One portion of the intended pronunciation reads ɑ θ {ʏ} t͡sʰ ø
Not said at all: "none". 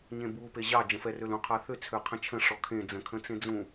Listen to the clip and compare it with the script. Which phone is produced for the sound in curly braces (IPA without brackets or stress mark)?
ʏ